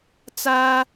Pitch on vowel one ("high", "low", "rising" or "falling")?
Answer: high